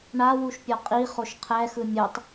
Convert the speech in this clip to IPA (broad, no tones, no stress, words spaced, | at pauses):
ɳawuʃ pʲɔqʼiχoʃ qʰɛxɯ mʲutˤ